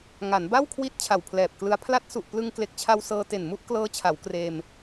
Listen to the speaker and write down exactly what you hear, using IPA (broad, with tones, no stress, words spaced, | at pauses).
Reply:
ŋa˩˦nba˥˩wkʰwi˦˥t̚ t͡ɕʰa˨˩wpʰlɛː˨˩p̚klɯ˦˥a̯ pʰla˦˥t̚su˨˩ʔ plɯ˧ŋkle˨˩k̚t͡ɕʰa˧w sɤː˧te˨˩n mu˥˩ʔklɤː˦˥t͡ɕʰa˩˦w kreː˧m